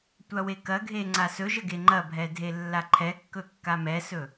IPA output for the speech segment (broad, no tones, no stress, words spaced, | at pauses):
tʷawekɐɡʱe ŋ͡ǀasɵʒə ɡeŋ͡ǃɐbʱɛ dʱelːaǃʰɛkːɵ kːamɛsɵ